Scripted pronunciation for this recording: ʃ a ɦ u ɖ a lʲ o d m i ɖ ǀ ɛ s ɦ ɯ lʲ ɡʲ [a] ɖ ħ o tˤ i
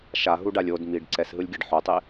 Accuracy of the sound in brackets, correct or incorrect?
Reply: correct